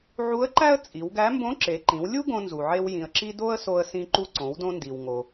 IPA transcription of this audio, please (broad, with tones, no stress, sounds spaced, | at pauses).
ʕ u˧˥ ə̯ ǃ æ˥ ə̯ t͡sʼ i˩˧ w ɡ æ˧˥ m b õ˧˥ ǁ e˩˧ ǃ ĩ˩˧ w lʲ u˥ ɡ õ˧ n z u˩ ʕ e˧ w j ĩ˩ ə̯ ǁ i˧ d o˥ ə̯ s o˧ ə̯ s ĩ˧ ǃ u˧ ǀ õ˩˧ w d õ˧ n d i˩ w ŋ o˩